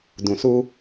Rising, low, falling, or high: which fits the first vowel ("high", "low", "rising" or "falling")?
low